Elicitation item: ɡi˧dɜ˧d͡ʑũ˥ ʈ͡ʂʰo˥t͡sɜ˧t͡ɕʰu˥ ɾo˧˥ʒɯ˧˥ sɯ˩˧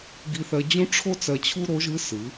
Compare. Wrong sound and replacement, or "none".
d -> θ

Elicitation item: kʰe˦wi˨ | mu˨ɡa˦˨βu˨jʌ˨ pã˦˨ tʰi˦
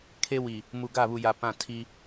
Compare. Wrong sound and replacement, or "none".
ʌ˨ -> a˨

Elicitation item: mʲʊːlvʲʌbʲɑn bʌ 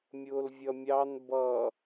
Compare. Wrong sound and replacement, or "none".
bʲ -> mʲ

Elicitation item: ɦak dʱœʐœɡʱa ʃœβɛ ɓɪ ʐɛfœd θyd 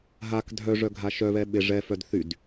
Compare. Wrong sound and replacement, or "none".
none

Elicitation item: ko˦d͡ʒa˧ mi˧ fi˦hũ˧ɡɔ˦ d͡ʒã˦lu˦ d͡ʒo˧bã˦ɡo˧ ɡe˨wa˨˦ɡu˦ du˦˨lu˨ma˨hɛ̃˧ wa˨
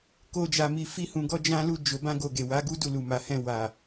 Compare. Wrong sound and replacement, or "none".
none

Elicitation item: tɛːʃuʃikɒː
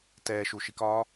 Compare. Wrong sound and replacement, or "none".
none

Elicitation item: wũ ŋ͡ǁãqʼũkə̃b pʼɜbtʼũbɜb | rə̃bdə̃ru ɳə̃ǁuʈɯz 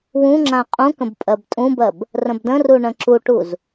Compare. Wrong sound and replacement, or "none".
ɯ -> u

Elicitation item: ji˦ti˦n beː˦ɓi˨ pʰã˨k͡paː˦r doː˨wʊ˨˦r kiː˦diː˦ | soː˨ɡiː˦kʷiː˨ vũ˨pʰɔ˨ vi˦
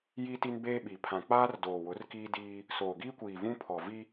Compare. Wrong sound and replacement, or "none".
ũ˨ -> ũ˦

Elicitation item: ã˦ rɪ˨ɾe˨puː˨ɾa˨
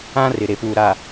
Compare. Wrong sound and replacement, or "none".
none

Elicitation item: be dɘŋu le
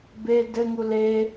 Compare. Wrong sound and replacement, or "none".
none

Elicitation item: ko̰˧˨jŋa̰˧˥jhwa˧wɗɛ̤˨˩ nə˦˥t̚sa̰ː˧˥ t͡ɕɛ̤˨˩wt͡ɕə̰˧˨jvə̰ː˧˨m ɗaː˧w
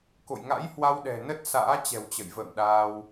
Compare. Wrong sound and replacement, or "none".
none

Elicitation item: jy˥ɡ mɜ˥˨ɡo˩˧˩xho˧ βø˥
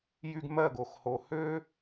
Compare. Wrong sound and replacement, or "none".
β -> h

